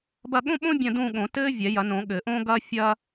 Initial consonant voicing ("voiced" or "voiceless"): voiced